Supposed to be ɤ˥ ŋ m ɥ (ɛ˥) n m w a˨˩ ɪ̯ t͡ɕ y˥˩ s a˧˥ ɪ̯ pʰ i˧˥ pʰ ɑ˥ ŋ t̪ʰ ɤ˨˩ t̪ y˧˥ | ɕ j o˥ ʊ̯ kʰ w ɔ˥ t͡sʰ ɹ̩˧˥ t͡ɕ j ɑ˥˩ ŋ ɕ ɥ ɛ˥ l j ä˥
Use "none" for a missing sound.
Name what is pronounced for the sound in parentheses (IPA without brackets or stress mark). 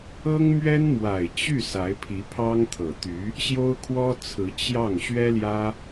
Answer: ɛ˥